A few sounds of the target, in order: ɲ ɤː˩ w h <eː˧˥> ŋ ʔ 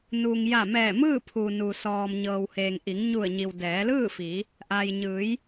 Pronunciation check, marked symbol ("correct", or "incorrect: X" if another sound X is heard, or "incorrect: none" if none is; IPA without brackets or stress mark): incorrect: eː˩